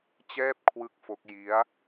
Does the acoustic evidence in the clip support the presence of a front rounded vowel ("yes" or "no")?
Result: no